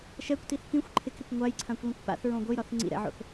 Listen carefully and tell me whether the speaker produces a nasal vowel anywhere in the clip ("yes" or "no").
yes